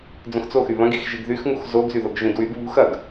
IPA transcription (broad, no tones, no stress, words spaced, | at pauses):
d͡zõxt͡soxy βɐ̃ɡix ʒiɡðyxŋux zoɡzyðoɡ ʒĩdwyɡ βṳx ɐɡ